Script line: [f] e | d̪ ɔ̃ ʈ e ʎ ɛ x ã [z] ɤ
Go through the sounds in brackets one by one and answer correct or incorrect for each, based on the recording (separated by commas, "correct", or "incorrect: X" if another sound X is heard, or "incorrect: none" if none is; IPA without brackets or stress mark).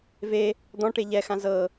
incorrect: v, correct